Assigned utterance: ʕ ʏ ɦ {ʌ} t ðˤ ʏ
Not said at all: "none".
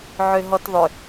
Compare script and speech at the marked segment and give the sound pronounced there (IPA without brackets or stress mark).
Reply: ɔ